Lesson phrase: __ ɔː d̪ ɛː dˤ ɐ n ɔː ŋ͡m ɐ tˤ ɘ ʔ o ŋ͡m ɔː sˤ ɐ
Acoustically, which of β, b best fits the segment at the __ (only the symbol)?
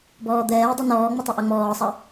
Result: b